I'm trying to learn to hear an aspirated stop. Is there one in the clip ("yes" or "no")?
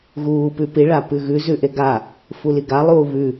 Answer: no